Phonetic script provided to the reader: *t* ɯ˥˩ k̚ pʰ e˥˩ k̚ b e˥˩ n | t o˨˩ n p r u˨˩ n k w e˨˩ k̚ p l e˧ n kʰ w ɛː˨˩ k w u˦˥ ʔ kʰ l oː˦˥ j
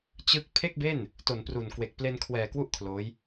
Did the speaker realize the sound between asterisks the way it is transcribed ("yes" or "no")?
no